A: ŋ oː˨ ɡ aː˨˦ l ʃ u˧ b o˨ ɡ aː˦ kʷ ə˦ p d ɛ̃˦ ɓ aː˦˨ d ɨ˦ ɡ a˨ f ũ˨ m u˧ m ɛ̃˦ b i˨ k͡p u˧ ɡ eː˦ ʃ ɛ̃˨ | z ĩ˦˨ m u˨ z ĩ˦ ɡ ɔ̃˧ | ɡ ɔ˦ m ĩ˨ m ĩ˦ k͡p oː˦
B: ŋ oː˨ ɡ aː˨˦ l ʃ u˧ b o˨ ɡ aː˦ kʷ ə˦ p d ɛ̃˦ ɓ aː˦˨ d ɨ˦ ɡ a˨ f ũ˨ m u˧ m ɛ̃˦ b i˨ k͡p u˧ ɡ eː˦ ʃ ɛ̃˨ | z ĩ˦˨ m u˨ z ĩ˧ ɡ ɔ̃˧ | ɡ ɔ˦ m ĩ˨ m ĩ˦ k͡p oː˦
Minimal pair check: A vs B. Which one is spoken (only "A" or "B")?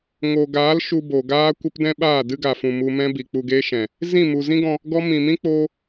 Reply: A